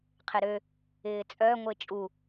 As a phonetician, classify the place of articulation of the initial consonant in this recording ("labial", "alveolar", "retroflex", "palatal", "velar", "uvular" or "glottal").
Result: uvular